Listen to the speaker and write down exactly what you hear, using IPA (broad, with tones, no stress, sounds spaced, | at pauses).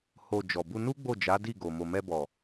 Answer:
h o˨ d͡ʒ ɔ˨ b u˧ n u˦ ɡ͡b o˦˨ d͡ʒ a˨˦ d i˦˨ ɡ o˨ m o˨ m ɛ˧ b ɔ˨